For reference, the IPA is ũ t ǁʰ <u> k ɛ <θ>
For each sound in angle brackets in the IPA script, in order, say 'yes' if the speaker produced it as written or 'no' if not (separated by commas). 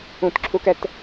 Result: yes, no